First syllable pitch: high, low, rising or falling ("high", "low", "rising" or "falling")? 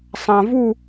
low